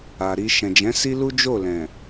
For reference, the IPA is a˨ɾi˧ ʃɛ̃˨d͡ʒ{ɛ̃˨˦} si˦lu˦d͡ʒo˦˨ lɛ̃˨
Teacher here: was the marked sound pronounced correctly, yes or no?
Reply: yes